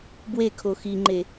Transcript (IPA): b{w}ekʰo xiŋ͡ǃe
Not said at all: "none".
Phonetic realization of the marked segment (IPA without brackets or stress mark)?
w